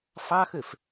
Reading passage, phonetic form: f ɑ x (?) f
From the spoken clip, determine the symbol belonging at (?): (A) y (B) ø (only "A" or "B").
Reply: B